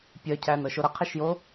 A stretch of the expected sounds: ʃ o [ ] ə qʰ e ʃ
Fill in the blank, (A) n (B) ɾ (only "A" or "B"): B